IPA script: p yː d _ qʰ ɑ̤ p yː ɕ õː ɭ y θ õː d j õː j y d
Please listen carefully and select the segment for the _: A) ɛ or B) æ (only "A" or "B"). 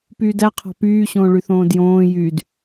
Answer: B